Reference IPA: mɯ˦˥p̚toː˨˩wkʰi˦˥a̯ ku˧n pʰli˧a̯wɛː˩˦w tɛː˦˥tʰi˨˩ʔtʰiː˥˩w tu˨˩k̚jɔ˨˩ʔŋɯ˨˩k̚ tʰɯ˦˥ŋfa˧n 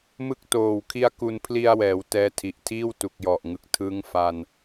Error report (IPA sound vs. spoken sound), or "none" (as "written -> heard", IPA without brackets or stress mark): p̚ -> k̚